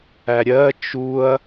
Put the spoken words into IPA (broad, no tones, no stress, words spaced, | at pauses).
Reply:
æɾʲɜ t͡ʃuɐ̯